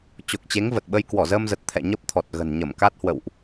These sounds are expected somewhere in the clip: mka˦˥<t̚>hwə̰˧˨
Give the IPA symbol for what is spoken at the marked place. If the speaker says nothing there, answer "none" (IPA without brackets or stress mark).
t̚